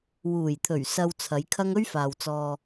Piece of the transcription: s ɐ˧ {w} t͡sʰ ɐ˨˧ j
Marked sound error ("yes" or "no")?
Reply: no